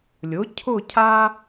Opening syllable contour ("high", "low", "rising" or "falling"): rising